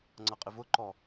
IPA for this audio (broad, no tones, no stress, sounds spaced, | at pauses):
ŋ͡ǀ ʌ qʼ ɪ v ʊ ǃ ɔ